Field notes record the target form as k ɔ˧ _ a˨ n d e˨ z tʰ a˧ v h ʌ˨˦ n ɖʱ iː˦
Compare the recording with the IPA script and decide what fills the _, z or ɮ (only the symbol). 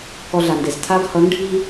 ɮ